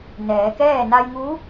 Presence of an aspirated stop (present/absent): absent